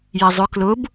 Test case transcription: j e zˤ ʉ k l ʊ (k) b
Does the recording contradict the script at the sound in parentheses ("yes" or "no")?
yes